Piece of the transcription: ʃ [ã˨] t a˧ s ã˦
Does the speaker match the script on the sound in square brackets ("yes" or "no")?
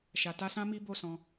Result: no